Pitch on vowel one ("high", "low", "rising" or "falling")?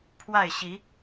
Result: falling